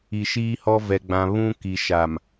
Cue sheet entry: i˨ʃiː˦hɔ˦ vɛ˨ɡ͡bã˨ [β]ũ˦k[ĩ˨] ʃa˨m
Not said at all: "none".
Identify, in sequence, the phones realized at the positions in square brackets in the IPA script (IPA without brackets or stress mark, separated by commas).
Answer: β, i˨